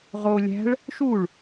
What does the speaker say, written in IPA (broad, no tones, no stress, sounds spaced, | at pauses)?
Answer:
ʁ o lʲ æ̤ ɭ | ʃ u ɭ